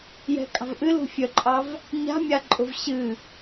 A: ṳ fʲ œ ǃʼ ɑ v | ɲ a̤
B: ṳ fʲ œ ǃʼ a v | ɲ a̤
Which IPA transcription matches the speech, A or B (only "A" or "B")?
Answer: A